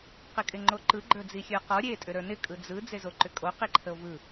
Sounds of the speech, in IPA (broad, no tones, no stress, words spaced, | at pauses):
qɪkʼɪŋ͡ǃoǃɯ ɡ͡ǃə˞d͡zixʲə˞qɔ ɾʲe tʼʏɾə˞nɪ kʼɯd͡zɯ d͡zezoǃʏkʼo qiǃʰəo̯vɯ